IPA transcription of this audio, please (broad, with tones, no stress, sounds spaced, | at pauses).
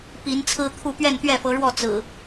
p i˨˦ n t͡sʰ ɹ̩˦ t̪ʰ u˥˨ p ɥ ɛ˥˨ n t̪ ɥ ɛ˥˨ f ɤ˨˦ ɻ w ɔ˥˨ t͡s ɹ̩˨˩